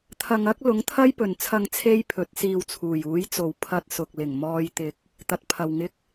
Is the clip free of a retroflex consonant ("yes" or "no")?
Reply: yes